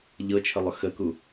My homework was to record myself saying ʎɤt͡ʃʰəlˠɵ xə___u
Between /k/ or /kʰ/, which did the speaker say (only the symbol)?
k